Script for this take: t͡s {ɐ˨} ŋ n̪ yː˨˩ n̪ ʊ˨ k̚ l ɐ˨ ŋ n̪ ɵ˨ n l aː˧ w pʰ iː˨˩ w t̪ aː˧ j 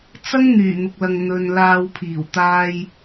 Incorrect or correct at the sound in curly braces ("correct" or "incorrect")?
incorrect